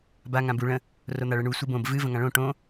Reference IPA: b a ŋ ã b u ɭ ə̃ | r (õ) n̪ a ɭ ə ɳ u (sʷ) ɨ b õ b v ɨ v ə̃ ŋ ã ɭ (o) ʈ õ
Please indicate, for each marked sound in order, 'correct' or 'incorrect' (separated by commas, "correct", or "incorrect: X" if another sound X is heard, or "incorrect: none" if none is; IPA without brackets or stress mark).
incorrect: o, correct, incorrect: õ